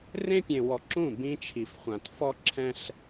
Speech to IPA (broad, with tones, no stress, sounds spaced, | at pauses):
r ẽ˦ pʲ ẽ˨ w ɔ˨ ǁ ũ˦˨ b ĩ˦ t͡ʃʰ i˨ f χʷ ã˨ t f ɔ˦ ǁʰ ɛ̃˦ ɬ